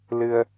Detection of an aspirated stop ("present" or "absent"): absent